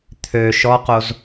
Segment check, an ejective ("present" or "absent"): absent